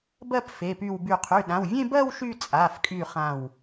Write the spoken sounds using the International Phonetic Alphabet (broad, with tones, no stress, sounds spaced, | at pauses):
b ɜ˥˧ p f e˩˧˩ p y˧˩ w b y˧˩ qʰ y˩˧˩ ɗ ã˩˧˩ w vʲ ẽ˥˧ b ɜ˥˧ w ʃ y˥˧ t͡sʼ a˩˧˩ f kʼ y˧˩ χ ã˧˩ w